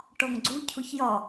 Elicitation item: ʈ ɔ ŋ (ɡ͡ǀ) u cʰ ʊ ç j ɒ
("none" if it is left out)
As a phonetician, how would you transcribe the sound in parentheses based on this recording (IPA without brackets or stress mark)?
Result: ɡ͡ǀ